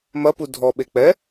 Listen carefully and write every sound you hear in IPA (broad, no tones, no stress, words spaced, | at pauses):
mɐpu dʱɔɓe k͡pɛ